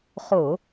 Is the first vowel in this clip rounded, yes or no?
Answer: yes